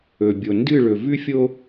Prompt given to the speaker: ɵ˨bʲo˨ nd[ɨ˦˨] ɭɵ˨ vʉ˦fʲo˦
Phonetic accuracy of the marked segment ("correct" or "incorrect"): correct